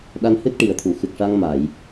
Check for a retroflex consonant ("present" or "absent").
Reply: present